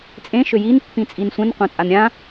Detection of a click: absent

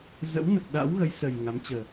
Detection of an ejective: absent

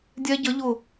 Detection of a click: absent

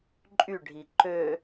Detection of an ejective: present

